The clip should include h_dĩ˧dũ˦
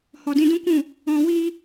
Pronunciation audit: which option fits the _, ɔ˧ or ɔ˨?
ɔ˨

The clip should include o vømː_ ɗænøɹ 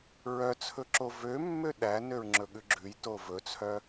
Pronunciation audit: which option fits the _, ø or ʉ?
ø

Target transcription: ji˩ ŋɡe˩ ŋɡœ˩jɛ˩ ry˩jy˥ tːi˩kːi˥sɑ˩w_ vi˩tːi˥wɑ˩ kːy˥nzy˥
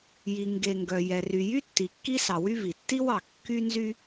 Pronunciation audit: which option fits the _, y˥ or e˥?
y˥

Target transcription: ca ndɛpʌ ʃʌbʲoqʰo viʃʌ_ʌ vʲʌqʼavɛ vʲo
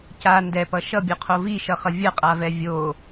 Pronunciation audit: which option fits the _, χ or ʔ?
χ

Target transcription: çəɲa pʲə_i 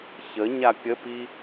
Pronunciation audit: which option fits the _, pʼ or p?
p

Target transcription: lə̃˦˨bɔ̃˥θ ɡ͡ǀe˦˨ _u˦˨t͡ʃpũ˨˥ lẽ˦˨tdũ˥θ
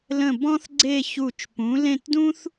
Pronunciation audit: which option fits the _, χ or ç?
ç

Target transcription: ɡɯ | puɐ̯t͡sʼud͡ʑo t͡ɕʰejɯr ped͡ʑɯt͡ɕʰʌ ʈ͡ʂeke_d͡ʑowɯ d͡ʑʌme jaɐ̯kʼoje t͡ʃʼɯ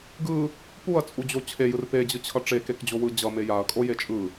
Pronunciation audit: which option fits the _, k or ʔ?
k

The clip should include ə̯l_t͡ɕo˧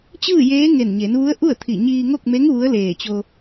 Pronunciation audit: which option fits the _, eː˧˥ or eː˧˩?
eː˧˩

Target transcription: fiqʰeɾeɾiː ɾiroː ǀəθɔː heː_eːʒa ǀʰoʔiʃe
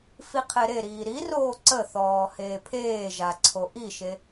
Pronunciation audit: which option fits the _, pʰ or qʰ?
pʰ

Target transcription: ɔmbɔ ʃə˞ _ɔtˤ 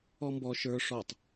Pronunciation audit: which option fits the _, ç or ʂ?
ʂ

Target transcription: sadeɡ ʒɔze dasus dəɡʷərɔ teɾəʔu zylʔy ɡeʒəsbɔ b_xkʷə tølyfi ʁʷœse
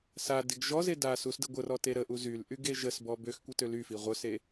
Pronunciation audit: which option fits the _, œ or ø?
ø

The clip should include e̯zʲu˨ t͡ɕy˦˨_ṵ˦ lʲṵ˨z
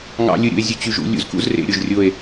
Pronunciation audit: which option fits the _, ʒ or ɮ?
ʒ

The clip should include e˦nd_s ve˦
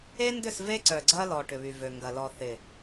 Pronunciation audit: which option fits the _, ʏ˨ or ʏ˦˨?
ʏ˦˨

